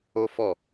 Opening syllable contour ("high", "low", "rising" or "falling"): high